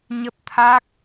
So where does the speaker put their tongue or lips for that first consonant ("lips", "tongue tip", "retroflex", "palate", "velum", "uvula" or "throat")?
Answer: palate